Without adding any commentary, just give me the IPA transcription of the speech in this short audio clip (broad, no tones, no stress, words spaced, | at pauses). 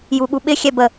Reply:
juɠuɓɪ xʲɛbə